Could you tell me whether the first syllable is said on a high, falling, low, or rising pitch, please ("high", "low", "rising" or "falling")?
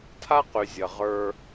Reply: high